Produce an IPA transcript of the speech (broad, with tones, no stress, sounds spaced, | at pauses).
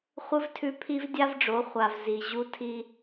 χʷ ɨ˦ v tʰ ʉ˧ pʰ i˦ v dʲ a˦ v ɖ͡ʐ o˨˦ χʷ a˨ v z i˨ ʑ u˦ tʰ i˦